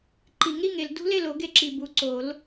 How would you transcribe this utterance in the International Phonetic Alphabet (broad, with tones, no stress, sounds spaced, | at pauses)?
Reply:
ǃ i˨˩˦ ŋ ɾ i˥˨ ŋ e˨ l d ṳ˦˥ l e˥˨ l o˨˩˦ ɡ e˥˨ ǁ i˨ b u˨ ǀ o˨˩˦ l